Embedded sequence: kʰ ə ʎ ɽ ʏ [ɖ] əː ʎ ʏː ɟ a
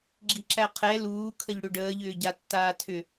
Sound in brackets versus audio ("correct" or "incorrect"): correct